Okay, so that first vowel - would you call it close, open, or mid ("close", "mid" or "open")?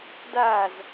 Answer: open